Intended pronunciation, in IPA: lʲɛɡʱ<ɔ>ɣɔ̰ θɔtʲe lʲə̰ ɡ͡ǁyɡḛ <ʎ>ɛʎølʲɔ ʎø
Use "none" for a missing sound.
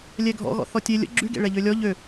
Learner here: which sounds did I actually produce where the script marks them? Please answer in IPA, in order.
ɔ̰, ɭ

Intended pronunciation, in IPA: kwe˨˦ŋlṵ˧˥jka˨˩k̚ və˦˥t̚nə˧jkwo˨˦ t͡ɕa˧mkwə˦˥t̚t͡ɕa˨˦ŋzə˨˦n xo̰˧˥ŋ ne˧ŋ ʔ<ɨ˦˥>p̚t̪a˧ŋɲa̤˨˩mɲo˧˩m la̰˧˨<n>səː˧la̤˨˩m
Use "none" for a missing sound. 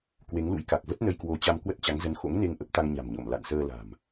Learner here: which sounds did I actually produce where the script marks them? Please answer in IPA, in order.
ə˦˥, n

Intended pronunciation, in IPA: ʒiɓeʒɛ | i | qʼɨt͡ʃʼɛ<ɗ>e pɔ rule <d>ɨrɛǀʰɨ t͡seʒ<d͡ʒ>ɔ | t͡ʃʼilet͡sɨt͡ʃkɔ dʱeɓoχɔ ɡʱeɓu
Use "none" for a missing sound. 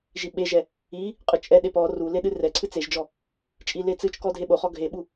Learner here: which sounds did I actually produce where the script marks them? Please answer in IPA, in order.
ɗ, ɗ, d͡ʒ

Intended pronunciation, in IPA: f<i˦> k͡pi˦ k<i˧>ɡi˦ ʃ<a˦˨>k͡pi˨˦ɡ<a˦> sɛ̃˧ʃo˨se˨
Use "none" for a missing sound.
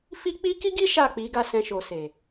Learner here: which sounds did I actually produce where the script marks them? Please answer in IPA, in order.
i˦, i˦, a˦˨, a˦˨

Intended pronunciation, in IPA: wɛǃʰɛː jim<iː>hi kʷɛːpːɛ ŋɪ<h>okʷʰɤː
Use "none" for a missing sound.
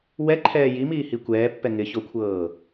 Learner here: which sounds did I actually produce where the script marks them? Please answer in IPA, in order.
iː, ç

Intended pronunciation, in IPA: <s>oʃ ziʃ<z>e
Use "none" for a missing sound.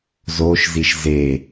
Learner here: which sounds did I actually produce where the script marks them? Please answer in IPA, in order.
z, z

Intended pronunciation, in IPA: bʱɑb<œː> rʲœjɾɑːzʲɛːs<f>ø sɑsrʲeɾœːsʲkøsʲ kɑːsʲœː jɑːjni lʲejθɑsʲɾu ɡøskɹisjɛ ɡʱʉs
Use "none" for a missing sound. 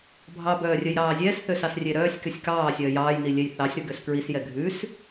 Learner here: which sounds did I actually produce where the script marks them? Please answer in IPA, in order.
œː, θ

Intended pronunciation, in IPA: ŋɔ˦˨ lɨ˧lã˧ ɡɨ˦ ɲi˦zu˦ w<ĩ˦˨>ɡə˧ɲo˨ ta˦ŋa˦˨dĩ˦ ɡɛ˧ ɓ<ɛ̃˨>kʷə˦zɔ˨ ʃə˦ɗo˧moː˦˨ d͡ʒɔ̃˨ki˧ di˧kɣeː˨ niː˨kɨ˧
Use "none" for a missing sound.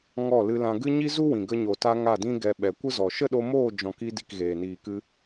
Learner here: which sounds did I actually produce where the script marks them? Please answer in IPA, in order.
ĩ˨, ɛ˨

